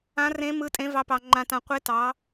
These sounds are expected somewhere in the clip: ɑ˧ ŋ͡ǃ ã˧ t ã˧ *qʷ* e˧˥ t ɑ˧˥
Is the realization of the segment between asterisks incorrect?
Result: no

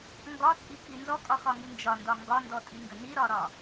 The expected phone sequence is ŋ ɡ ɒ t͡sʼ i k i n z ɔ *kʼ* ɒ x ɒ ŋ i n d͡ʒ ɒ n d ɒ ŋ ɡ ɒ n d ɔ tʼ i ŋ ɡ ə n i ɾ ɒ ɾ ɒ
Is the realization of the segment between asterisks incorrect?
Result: no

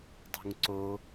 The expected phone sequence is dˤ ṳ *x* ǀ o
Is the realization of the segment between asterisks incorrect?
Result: yes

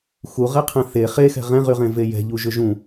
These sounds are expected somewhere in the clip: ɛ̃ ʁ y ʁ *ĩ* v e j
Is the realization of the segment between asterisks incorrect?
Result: yes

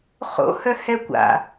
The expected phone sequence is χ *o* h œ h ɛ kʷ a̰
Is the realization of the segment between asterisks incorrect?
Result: yes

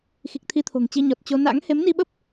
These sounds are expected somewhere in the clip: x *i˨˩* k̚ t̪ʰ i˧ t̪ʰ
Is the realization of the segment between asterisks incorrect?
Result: no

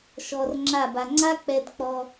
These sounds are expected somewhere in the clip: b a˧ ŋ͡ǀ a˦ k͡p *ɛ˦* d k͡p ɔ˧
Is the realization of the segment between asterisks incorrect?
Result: yes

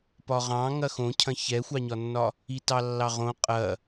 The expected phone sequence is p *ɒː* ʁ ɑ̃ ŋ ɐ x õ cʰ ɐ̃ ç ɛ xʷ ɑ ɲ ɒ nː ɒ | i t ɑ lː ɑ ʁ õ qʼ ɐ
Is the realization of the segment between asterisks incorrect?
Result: yes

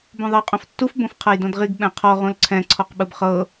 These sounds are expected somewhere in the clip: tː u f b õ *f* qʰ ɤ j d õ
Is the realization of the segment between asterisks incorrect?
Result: no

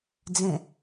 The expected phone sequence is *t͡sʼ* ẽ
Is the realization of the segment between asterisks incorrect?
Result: yes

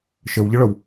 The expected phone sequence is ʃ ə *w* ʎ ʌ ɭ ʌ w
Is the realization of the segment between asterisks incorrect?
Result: no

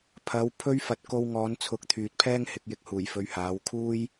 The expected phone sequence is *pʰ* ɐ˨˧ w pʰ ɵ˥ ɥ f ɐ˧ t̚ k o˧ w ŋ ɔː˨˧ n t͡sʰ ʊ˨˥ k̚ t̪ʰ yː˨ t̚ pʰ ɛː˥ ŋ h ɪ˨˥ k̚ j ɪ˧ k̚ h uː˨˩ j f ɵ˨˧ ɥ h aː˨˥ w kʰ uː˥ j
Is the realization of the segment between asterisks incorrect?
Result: no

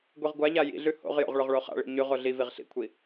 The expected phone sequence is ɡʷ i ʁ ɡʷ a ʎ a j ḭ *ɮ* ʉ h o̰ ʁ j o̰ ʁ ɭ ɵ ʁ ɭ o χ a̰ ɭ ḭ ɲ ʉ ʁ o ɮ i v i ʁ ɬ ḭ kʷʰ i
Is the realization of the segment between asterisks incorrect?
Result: no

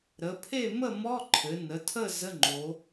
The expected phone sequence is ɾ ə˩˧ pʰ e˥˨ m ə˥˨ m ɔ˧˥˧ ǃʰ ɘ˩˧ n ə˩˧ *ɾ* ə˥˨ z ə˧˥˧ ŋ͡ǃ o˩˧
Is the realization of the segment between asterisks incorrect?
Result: yes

